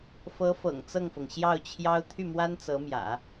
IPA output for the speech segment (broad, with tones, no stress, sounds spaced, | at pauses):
f ɤ˧˥ f ɤ̰˨˩ ŋ t͡s ɤ˥˩ ŋ f ɤ˩ ŋ ɕ j ɑ˥˩ ʊ̯ t͡ɕʰ j ɑ˥ ʊ̯ t̪ʰ y˥˩ m w a˥ n t͡s ɤ˧˥ m j ä̰˨˩˦